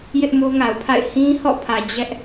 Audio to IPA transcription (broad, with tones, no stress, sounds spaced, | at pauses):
j ɪ˦ ʔ m o˦ ŋ a˨ ʊ̯ pʰ a̰˦˨ ɪ̯ h ĩ˦ h ɔ̰˦˨ pʰ ä˨ d͡ʑ ɛ˦ ʔ